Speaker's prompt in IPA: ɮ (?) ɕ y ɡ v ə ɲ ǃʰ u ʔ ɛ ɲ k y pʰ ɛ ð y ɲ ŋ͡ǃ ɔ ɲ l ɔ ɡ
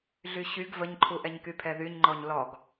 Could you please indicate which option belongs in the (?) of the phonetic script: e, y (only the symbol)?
y